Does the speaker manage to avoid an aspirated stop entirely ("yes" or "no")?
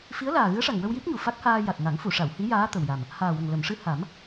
yes